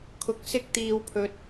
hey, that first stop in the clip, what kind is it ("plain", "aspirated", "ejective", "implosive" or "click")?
aspirated